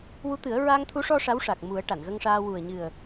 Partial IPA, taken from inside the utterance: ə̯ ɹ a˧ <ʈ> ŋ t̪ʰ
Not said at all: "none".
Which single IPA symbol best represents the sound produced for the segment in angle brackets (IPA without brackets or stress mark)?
none